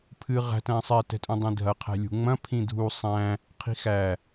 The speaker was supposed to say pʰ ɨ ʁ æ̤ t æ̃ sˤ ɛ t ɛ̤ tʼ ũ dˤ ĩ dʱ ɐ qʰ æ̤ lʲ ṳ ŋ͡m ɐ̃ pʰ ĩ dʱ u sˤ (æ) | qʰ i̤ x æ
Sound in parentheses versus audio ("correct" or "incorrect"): incorrect